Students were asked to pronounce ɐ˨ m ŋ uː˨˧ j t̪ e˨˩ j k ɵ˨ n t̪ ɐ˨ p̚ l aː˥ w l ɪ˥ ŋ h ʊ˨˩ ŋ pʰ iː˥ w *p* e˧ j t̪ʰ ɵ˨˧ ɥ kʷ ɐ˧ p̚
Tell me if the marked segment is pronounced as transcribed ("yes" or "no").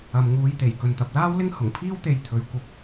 no